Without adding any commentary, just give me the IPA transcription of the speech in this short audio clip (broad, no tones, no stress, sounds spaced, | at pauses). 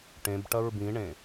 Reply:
ʈ ẽ b ʈ ɐ ɹ b ĩ ɳ ẽ